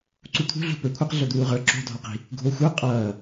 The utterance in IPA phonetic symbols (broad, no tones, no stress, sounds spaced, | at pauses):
ǀ u t̪ʰ ṳ ɮ ṳ p ə˞ kʷʰ ʌ q ɮ o d̪ uː ʁ ə˞ ǁ o̤ dʱ ɒ q i̤ | ɡʱ o xʷ ə˞ qʼ ʌː